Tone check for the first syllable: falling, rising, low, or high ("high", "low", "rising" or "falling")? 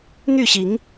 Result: falling